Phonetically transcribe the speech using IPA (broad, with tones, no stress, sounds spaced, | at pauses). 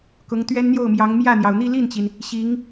k ʊ˧˥ ŋ t̪ ɥ ɛ˥ n n̪ j o˥˩ ʊ̯ m j ɑ˧˥ ŋ m j ä˥˩ n̪ j ɑ˩ ʊ̯ n̪ i˥˧ l i˥˩ n t͡ɕ i˩ n | ɕ i˧˥ ŋ